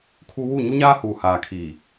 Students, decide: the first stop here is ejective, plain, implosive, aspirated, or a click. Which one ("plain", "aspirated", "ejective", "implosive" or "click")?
aspirated